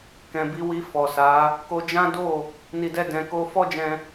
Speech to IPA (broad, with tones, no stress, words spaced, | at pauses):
kɛ̃˨bi˧wi˧ fɔ˨sa˨˦ | ko˧d͡ʒã˦ do˦˨ | ni˨dɛ˧ dɛ̃˧ko˦ fɔ˦d͡ʒɛ̃˧